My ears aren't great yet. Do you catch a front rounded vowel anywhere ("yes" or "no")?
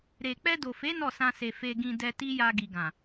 no